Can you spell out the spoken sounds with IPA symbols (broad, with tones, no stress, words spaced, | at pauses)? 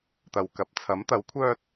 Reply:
t̪ɐ˨w kɐ˨˥p̚t͡sʰɐ˨˥mt̪ɐ˨˥w kʷʰœː˧t̚